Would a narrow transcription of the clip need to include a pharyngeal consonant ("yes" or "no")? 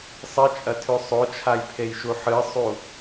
yes